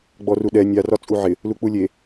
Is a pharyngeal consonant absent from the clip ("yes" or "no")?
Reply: no